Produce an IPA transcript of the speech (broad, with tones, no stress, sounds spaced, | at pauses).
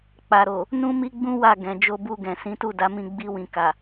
k͡p a˨ ɾ o˨ | n ũ˦ m i˦ ɡ͡b ũ˦ w a˦˨ ɡ ɛ̃˨ d͡ʒ o˧ b u˧ ɡ ɛ̃˨ s ĩ˨˦ t u˦˨ d a˨˦ m ĩ˧ ɡ͡b i˧ w ĩ˨ k a˨